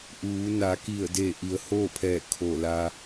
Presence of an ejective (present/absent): absent